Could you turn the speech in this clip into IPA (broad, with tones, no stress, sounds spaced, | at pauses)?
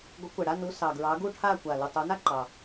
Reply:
ɡʷ ə˨˦ kʷ ɛ˨˩ ɽ a˦˨ n u˨˦ s ɑ˨˩ ɡ ɹ ɑ˨˦ ɡ u˦˨ ʈʰ a˦˨ kʷ a˨˩ l u˨˩ tˤ u˨˦ n a˥ ǃ ɑ˨˩